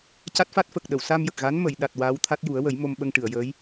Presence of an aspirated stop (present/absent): present